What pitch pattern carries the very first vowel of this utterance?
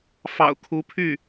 low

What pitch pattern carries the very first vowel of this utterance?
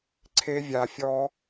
high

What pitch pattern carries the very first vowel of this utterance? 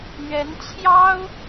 rising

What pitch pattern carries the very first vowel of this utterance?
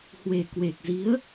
low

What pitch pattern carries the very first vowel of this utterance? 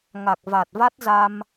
low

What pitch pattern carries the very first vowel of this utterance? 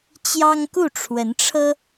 high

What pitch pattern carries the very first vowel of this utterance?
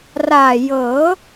low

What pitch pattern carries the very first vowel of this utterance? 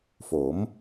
rising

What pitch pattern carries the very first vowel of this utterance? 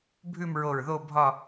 falling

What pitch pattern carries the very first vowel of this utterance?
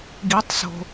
rising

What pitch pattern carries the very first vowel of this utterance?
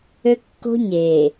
high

